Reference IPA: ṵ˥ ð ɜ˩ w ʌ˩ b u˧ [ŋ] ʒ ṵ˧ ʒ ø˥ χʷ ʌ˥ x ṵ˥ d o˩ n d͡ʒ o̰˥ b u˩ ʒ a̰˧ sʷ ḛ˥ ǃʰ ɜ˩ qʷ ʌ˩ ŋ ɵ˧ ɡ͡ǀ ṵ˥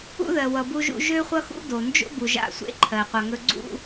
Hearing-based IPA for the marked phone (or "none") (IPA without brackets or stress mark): none